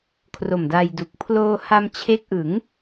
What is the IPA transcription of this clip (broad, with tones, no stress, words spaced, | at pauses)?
kʰro˨˩mda˧jdu˨˩k̚ pʰloː˧ha˧mt͡ɕʰe˦˥k̚ʔɯ˩˦ŋ